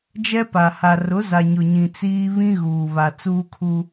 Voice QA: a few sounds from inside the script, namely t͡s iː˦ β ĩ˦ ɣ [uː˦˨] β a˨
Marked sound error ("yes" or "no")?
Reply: yes